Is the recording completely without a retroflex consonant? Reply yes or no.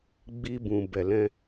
yes